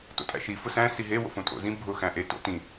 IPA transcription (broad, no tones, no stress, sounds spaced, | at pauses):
t o̰ tʼ æ̰ ʃ i f ʊ s æ̃ s i ɦ e w o̰ f õ tʼ o̰ z ĩ bʱ ʊ x æ̃ ʔ e t o̰ t ĩ